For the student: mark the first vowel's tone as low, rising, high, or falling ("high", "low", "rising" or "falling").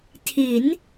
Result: rising